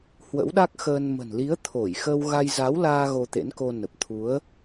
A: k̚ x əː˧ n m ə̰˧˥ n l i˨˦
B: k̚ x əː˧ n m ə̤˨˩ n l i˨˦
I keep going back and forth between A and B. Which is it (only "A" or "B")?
B